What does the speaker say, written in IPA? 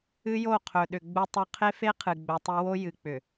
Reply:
ɨ˦ j o˦˨ qʰ ɵ˨ ɗ ʏ˨ ɡ͡b u˨ tˤ ɵ˨ qʰ e˦ f e˦ qʰ ɨ˨ ɡ͡b ɵ˨ tˤ e˦ w o˦ j ɨ˨ k͡p ʏ˨

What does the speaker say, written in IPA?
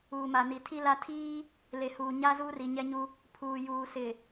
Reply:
uː˨ m a˨ n i˨ tʰ i˦ l a˦ tʰ iː˦ | l e˨ h uː˨ ɲ a˦ z uː˦ r i˨ ɲ ɛ˦ ɲ u˦ | pʰ uː˨ j uː˨ s ɪ˨

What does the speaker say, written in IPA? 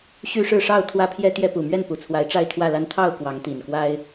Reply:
ɕ y˦ ʂ ɻ̩˥˨ ʂ ɑ˥˨ ʊ̯ t̪ʰ w ä˦ pʰ j ɛ˦ t̪ j ɛ˦ p u˨˩ m ɥ ɛ˥˨ n p u˨˩ t͡sʰ w a˨˦ ɪ̯ ʈ͡ʂ a˥˨ ɪ̯ t̪ʰ w ä˥˨ l a˦ n t̪ʰ ɑ˥˨ ʊ̯ k w ɑ˨˦ ŋ t̪ i˨˩ n k w a˦ ɪ̯

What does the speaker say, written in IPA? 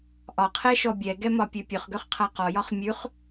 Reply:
ʔ ɒ qʰ ɛ ʃ ɔ bʲ ɛ ɡ ɛ m ɒ pʲ ø pʲ ø χ ɡ ø χ qʰ a q ɔ j ɒ χ mʲ ʉ χ

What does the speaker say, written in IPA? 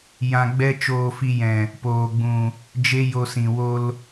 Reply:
j ã˧ ɡ͡b ɛ˦ t͡ʃ oː˧ f i˧ j ɛ̃˨ | p oː˨ ɡ͡b ũ˨ | d͡ʒ e˦ j o˧ s ĩ˨ w o˧ l

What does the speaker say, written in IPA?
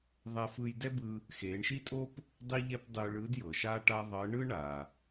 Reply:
ðˤ ɛ˧ f ɯ˧ j d ɛ˥ b ɯ˧ | x e˩˧ ɳ ʃ i˥ tʼ o˥ p | dˤ i˥ ʎ ɛ˥ p dˤ ɯ˧ ɭ ɯ˧˥ d j ɤ˩ ʃ a˥ ʈ a˥ ðˤ ɤ˧˥ ɳ ɯ˥ ɳ a˩

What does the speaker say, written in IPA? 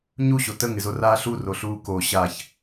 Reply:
ɲ u ɕ o t ə ŋ ɪ z o r aː ɬ u r o ɬ uː k o ɕ a ç

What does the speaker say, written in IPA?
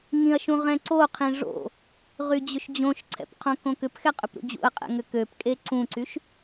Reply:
ŋ ĩ ɐ̯ ʃ ũ ʁ ɛ̃ ǀ o qʰ ĩ ʐ o̰ | ʁ y d͡ʑ ʏ ʃ d͡ʑ õ ʃ ǀʰ ɛ̰ p qʰ õ k õ k ʏ p x ɛ qʼ ʏ p ɾ ṵ d͡ʑ ṵ ɐ̯ qʼ ɛ̰ ŋ ʏ k ø p kʼ e ǀ ũ ǀ y ʃ

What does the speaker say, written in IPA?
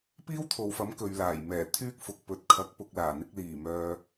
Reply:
p iː˥ w t̪ʰ o˨ w f ɐ˨˥ m k ɵ˨ ɥ l aː˨˩ j m ɛː˨˩ t̪ʰ yː˥ k̚ f ʊ˨ k̚ p ɵ˨ t̚ kʰ ɐ˨˥ k̚ p ʊ˨ k̚ l aː˨˩ n̪ ɪ˧ k̚ l iː˨˩ m œː˨

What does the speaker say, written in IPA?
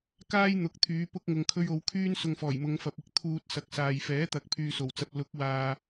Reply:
k aː˥ j n̪ ʊ˨˥ k̚ t̪ʰ yː˨˧ p ʊ˧ k̚ ŋ ʊ˨ ŋ kʰ ɵ˧ ɥ o˨˧ w kʰ yː˥ n s ʊ˧ ŋ f ɔː˨˩ j m ʊ˨˧ ŋ f ɐ˨ p̚ ɪ˧ k̚ t̪ʰ uː˧ t̚ s ɐ˨ k̚ s aː˨ j f ɛː˨˥ t̪ ɐ˨˥ k̚ pʰ yː˧ s o˨˩ w t͡s ɐ˧ p̚ l ʊ˨˥ k̚ w aː˨

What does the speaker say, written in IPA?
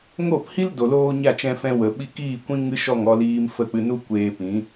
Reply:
ŋ o˦˨ p h i˦ l d o˨ l oː˧ ɲ a˦˨ t͡ʃ ɛ̃˧ f ɛ̃˧ w ə˨ ɓ i˧ k iː˦˨ kʷ ĩ˦ ŋ ɨ˦ ʃ ɔ˦˨ ŋ ɔ˧ l iː˧ m f ə˦˨ k͡p ɨ˧ n u˦ kʷ eː˧ p ĩ˨˦

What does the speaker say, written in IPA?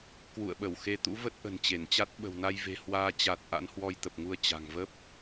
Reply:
k w ṵ˧˨ ə̯ ɓ ə˧˩ w x e˧ t̪ ṵ˧˥ v ə˦˥ t̚ ʔ ə̤˨˩ n t͡ɕ e˧˩ n t͡ɕ a˦˥ t̚ ɓ ə̤˨˩ w n a˧ j v e̤˨˩ h w aː˧ t͡ɕ a˨˩ t̚ ʔ a̰˧˥ n h w ɔ˧ j t̪ ə˨˩ p̚ ŋ u˧ ə̯ t͡ɕ a̤˨˩ ŋ v ə˦˥ p̚

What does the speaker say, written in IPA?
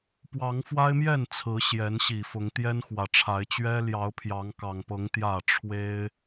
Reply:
p w ɑ˨˦ ŋ f w a˦ ɪ̯ m j ɛ˥˨ n t͡sʰ ɹ̩˨˦ ɕ j ɛ˨˦ n ɕ i˨˩ f ʊ˨˦ ŋ t̪ j ɛ˦ n x w ä˨˩ ʈ͡ʂʰ a˨˦ ɪ̯ t͡ɕ ɥ ɛ˦ l j ɑ˨˦ ʊ̯ pʰ j ɑ˨˦ ŋ k ɑ˨˩ ŋ p ɤ˨˦ ŋ t̪ j ä˥˨ ʈ͡ʂʰ w e˦ ɪ̯

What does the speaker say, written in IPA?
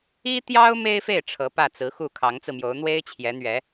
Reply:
i˥ t̪ j ɑ˥ ʊ̯ m e˥ ɪ̯ f e˥˩ ɪ̯ ʈ͡ʂʰ ɤ˧˥ p ä˥˩ t͡s ɹ̩˧˥ x u˥˩ kʰ ɑ˧˥ ŋ t͡s ɹ̩˧ m j o˧˥ ʊ̯ n̪ w e˥ ɪ̯ t͡ɕʰ j ɛ˧˥ n̪ ɥ ɛ˧˥

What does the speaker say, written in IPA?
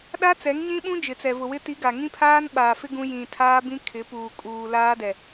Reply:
ɗ a˦ t͡s ɛ˨˦ ŋ ɲ ĩ˦ ɓ ũ˦ d͡ʒ ɪ˨ t͡s ɛ˨ v ʊ˨ w ɪ˦ t i˨˦ ɡ a˨ ŋ ĩ˦ pʰ aː˦ n ɓ aː˨ f ɪ˦ ɡ ũ˦ j ĩ˨ tʰ aː˦ b ĩ˦ kʰ ɪ˨˦ p uː˨ kʼ uː˨ l aː˦ d ɛ˨

